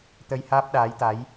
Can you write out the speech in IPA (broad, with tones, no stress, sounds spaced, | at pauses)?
t̪ ə˧ j h aː˦˥ p̚ ɗ aː˨˦ j t̪ a˨˦ j